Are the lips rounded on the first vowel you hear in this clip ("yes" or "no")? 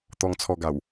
yes